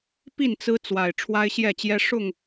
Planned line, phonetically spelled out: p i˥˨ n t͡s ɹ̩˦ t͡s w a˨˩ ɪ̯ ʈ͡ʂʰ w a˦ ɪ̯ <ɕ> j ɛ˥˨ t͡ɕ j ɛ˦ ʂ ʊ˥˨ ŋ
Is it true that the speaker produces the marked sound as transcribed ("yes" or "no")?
yes